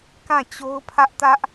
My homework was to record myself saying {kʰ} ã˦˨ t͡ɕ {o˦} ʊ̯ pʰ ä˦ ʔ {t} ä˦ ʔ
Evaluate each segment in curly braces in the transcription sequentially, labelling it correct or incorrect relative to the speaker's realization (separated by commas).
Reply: incorrect, correct, correct